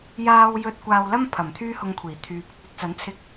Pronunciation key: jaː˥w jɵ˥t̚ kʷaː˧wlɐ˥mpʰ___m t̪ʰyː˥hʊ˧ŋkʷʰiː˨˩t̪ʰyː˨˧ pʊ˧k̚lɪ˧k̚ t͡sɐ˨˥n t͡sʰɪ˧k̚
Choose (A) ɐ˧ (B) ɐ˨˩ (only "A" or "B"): B